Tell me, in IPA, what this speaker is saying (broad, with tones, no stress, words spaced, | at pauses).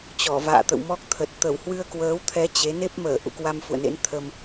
t͡ɕɔ˧˩va̰ː˧˨t̪ə̰˧˨wmɔ˦˥k̚ t̪ʰə˨˩t̚ t̪ə˧˩w hwɨ˧ə̯kwəː˨˦wt̪ʰɛ˨˦ t͡ɕe˨˦ ne˦˥p̚məː˧˩ ʔṵ˧˨kwa˧mfṵ˧˨ə̯nḛ˧˥n t̪ʰə˧m